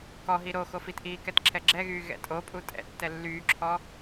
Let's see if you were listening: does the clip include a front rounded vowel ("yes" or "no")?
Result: yes